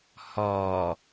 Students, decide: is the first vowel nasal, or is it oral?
oral